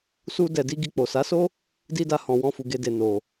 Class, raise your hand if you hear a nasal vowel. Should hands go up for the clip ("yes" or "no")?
yes